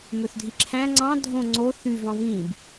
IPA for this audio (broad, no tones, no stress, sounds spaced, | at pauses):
m ø θ dʱ i ǁʰ æ̃ ŋ͡ǀ ɑ̃ dʱ õ ŋ͡ǀ o θ y v ɑ̃ v ĩ b